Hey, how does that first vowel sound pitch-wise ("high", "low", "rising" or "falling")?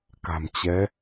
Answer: low